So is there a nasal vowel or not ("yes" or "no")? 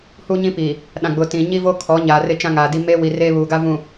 yes